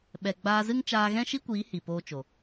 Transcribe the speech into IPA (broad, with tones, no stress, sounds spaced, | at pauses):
ɓ ɛ˨ ɡ͡b aː˧ z ɨ˦ ŋ t͡ʃ aː˧ ɣ ɛ̃˦ ʃ i˦ kʷ iː˨˦ h i˨ p oː˧ t͡ʃ o˨